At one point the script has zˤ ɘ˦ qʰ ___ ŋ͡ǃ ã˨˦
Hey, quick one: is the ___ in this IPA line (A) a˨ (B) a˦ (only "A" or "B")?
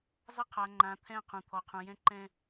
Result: A